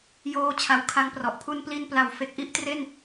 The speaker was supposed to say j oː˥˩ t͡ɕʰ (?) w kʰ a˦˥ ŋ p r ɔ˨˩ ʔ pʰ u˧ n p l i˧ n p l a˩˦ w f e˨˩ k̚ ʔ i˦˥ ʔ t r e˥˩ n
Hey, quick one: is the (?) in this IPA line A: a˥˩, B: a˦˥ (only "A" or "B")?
B